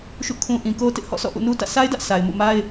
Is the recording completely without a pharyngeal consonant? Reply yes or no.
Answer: yes